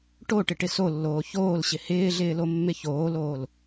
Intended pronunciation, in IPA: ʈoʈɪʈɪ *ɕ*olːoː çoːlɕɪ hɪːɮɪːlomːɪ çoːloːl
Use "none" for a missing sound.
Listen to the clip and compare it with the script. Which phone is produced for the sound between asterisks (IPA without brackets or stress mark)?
s